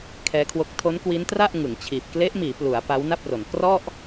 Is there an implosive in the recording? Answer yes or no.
no